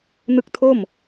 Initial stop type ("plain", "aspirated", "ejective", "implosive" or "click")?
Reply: plain